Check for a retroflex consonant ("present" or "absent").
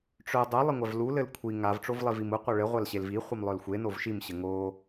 present